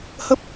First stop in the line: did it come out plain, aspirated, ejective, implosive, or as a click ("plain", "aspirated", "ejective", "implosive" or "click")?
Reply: plain